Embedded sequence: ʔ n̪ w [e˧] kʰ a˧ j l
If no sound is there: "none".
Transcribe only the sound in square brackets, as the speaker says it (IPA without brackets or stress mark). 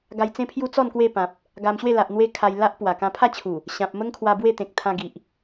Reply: e˧